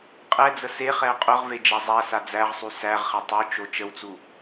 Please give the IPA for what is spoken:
qʼɛd͡zə seχɛʊ̯ qʼʊʁve d͡ʒazˤæsa d͡zæʁsˤy sæʁχɛ tˤot͡ʃo t͡ʃəwt͡su

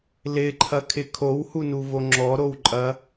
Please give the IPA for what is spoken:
lɪǃʰɐkʰɪ kʰowhunuvo ŋ͡ǁɔɾowǃʼɐ

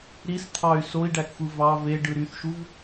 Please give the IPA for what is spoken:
ɾis t̪ʰɑy̯ soi̯ɖækxʷɯ vɑ ve ɖɯɾyθʃuv

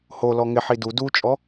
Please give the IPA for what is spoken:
ho lɔŋɪ ħidu dut͡ʃʼɔ

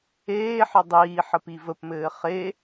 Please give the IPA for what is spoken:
eːħɘ dˤiː ħəpivəpmɘː χe

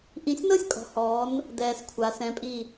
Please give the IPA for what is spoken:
ʔĩ˧sʲnɤ˥sʲkʼɔ̤˩˧hɔː˩˧n | dɛː˧skʷʰa˩˧ sɛ̃˩˧pʼi˧˩

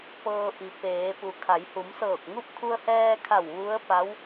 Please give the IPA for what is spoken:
pɤː˧ʔi˩˧ peː˩˧pu˩ kʰa˩˧jhu˩˧msɤː˧˩k̚ŋu˥˨p̚ kʰu˧ə̯hɛː˧kʰa˧˩w ʋu˧˥ə̯pa˧˥w

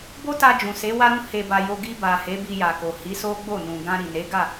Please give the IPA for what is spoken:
bo˦ta˧ d͡ʒũ˨se˨˦ wa˧ɾũ˧ he˨ba˨ jo˧ ɡi˧ba˨ he˨˦ bi˧ja˨ko˨ hi˨˦so˦ɡ͡bo˦˨ nũ˨ ɡã˧ ɾi˨ ne˨˦ɡa˦˨

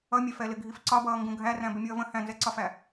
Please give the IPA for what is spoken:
ʌmʲɛfɛlɪ ɡʱifǀɒbʌː ŋɡũɡʱæræ̃ bɪmʲʌːvə̃ hæ̃nzɛǀɒfæ

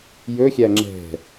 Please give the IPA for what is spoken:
jɵxʲæ ŋ͡ǁɛ̤

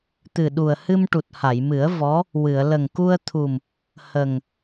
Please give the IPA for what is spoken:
t̪ɨ˨˩ɗu˨˩ə̯ hɨ˧mʈu˨˩t̚ha˨˩˨jmɨ˨˩˦ə̯ vɔ˧˥ | wɨ˨˩˨ə̯ lə˨˩ŋku˧ə̯t̪ʰu˨˩m | hə˨˩ŋ

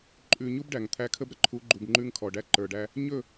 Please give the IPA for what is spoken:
ǃʼʉ˨ ɲu˦b ɖæ˨ŋt̪ʰæ˦ kʰə˦bɾə˨ ǃʰu˨˦ɡ͡ǃu˨b ŋ͡ǃʉ˦ŋkʰɔ˨ɖæ˦ ǃə˞˨ɖæ˦ | ɲɵ˦˨

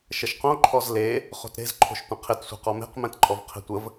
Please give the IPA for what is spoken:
ʃəʃqõ ǃʰɔzle | χo̤tɾe̤zǃʰo̤ʃ tʷə̃qʰɪtsʷe̤ qɔme̤qmɛ̃t ǃʼɔvqʰe̤tʷəv

